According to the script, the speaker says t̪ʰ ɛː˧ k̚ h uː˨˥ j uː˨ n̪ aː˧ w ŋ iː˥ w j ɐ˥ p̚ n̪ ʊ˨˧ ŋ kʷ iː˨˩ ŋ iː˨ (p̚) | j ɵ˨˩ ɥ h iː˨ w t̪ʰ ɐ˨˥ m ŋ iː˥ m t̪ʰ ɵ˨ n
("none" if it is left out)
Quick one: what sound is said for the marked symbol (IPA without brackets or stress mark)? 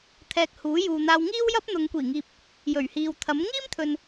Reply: p̚